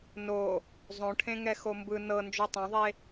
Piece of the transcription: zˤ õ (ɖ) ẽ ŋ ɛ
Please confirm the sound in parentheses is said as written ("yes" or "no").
no